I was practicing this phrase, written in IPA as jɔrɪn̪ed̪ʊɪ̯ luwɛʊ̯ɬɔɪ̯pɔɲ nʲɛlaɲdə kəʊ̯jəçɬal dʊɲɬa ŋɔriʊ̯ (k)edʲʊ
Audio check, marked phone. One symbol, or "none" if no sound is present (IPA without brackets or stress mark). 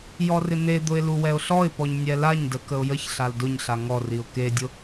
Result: k